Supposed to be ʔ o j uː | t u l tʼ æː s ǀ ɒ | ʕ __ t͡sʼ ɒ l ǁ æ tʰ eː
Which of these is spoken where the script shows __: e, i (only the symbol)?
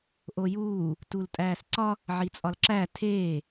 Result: i